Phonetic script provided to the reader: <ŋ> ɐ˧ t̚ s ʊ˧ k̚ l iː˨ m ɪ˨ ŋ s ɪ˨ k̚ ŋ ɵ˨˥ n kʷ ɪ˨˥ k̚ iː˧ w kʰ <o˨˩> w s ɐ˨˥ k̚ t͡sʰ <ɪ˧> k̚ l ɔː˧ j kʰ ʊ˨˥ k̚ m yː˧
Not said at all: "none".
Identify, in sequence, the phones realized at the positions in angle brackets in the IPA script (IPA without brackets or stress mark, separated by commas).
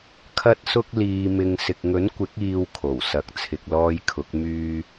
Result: kʰ, o˨˩, ɪ˨